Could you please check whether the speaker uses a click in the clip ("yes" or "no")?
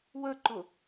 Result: yes